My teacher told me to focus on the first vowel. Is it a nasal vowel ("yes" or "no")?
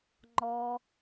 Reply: no